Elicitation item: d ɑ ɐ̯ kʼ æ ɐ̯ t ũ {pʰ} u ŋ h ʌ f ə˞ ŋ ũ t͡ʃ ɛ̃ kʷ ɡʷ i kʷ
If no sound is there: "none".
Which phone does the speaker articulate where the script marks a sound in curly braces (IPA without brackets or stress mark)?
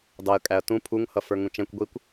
pʰ